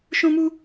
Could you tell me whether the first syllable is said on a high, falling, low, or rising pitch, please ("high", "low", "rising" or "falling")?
high